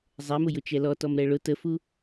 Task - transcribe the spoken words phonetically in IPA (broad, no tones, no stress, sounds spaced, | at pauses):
zˤ ɛ m ʊ j ʊ t͡ʃ ɛ l ɔ t ɔ m ɾ ɛ ɭ ʊ t ə f u